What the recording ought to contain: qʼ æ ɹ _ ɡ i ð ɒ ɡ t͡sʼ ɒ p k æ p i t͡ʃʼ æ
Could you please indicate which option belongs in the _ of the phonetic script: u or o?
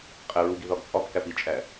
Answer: u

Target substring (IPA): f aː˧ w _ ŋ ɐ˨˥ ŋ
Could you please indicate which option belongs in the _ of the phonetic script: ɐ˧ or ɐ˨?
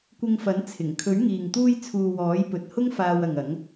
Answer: ɐ˨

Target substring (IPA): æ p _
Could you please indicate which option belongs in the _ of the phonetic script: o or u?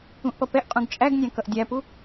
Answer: u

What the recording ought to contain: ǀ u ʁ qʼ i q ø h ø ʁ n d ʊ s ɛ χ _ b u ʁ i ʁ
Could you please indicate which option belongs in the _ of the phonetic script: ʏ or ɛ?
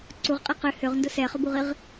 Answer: ʏ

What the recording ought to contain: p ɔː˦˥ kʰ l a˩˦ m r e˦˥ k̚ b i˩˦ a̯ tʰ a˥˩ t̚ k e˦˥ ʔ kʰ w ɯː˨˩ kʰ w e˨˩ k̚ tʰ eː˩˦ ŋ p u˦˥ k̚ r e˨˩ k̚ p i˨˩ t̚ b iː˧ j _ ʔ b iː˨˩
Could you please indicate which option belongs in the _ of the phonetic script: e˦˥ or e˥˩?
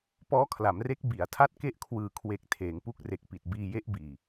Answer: e˦˥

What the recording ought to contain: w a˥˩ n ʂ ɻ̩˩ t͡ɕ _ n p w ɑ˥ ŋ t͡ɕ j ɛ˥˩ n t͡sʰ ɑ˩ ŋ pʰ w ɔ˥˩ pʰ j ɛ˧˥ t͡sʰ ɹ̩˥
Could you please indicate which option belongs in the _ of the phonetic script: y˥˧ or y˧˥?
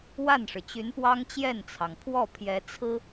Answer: y˧˥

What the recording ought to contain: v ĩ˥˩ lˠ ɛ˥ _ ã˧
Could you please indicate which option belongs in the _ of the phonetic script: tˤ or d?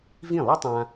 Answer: tˤ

